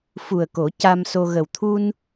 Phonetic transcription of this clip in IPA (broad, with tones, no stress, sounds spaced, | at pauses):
f u˨˩ ə̯ k o˨˩˦ c a˧ m s o˧ ɣ ə˨˩ w t̪ʰ u˧ n